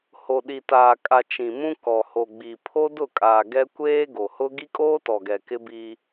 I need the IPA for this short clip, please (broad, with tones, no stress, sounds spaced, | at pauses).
h o˨ ɗ i˨ t aː˨ kʼ a˨ t͡ʃ ĩ˨ m ũ˦ k ɔ˨ h o˨ ɡ͡b i˨ pʰ o˦ d ʊ˦˨ kʼ aː˨ ɡ ɛ˦ kʷ eː˦ ɡ o˨ h ʊ˦ ɡ i˦ kʼ oː˦ t ɔ˨ ɡ ɛ˨ k ɪ˦ b iː˦